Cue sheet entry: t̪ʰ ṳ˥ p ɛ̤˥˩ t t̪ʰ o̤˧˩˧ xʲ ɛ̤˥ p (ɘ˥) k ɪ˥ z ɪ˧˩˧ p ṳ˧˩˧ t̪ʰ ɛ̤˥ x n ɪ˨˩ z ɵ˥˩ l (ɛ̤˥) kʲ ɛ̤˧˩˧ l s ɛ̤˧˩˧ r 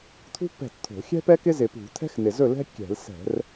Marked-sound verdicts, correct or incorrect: incorrect, correct

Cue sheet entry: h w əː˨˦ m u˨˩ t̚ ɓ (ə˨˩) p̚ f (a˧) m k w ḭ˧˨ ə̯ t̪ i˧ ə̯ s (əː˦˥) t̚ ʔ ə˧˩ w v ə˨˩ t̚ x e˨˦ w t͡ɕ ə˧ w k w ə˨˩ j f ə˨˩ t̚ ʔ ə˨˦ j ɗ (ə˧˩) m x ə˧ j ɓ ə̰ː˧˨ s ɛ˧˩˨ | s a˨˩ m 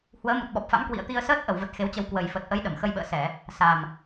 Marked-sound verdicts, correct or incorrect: incorrect, incorrect, correct, correct

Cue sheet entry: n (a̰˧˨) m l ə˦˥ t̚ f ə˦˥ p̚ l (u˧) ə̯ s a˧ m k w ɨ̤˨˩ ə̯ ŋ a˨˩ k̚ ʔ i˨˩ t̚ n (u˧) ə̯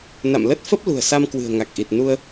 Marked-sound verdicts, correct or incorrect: correct, incorrect, correct

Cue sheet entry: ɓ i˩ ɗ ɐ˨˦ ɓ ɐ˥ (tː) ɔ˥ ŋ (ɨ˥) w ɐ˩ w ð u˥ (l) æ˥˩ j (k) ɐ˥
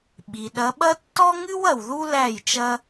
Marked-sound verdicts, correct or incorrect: correct, correct, correct, incorrect

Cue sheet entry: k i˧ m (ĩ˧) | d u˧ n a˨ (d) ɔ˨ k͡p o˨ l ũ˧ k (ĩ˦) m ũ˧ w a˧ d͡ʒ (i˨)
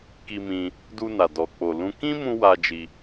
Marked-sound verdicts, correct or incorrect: correct, correct, correct, incorrect

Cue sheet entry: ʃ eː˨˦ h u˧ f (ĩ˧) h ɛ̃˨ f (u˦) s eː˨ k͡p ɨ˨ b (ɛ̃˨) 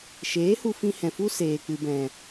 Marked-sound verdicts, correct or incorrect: correct, correct, correct

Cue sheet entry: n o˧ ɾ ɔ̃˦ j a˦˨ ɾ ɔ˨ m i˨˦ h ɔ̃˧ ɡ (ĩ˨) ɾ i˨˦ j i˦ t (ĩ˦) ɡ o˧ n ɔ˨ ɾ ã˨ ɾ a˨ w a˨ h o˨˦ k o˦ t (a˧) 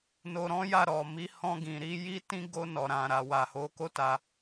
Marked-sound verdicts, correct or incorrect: correct, correct, correct

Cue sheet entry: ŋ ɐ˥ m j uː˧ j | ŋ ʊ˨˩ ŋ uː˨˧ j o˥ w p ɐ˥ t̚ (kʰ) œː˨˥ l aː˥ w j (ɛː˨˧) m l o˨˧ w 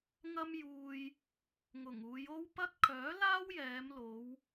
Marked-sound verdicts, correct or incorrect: correct, correct

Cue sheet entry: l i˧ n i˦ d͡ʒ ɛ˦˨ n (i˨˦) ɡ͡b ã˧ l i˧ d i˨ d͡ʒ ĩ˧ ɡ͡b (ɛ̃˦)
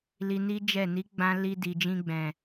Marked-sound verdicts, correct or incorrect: correct, incorrect

